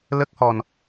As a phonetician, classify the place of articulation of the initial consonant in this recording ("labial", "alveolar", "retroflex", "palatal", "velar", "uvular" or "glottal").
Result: alveolar